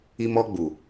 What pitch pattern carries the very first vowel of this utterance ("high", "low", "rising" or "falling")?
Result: high